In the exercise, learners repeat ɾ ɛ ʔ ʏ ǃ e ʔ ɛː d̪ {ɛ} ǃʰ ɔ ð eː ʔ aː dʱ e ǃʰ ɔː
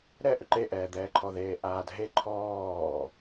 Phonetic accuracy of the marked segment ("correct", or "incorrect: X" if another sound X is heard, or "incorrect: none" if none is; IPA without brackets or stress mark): incorrect: ɛː